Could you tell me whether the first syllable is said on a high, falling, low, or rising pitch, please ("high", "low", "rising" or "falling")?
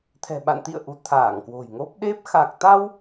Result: low